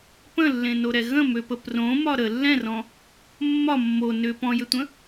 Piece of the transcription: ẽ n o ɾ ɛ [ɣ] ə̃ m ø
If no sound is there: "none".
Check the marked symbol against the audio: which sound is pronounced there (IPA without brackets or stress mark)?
ɣ